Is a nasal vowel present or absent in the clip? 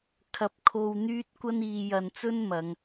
absent